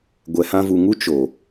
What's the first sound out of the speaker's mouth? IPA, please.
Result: ɡʷ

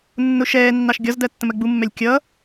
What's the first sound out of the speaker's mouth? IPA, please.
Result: nː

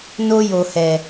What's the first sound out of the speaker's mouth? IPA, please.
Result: n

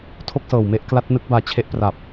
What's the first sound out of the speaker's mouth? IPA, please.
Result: tʰ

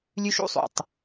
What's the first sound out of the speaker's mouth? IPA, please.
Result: lʲ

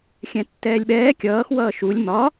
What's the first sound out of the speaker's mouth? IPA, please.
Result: xʲ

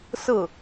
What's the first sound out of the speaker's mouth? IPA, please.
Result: s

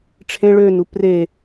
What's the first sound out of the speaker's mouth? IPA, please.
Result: ʈ͡ʂʰ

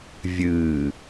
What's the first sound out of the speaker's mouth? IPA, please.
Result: vʲ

